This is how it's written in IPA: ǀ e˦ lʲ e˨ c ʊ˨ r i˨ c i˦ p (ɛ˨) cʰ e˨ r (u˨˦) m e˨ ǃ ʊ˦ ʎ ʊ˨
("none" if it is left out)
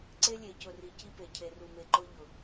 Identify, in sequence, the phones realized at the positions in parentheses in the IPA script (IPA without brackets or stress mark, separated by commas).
e˨, u˨